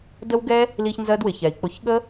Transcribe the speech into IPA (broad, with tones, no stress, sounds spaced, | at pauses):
d ə˦ w ɡ ɛ˦ | l i˧ ç n z ɜ˦ d w ɪ˨ ç ɛ˨ i̯ k͡p ʊ˧ ç ɠ ə˦